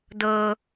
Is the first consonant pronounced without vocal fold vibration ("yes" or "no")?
no